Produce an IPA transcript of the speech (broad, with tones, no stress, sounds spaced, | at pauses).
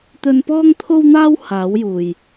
t̪ ɵ˧ n p ɔː˥ ŋ t̪ʰ o˥ w n̪ aː˥ w h aː˨˥ w j uː˨ j